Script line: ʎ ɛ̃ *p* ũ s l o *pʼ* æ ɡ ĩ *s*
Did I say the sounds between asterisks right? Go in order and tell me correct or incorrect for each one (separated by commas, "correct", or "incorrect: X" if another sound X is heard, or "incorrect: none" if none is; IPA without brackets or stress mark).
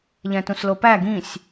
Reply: incorrect: t, incorrect: p, incorrect: sʲ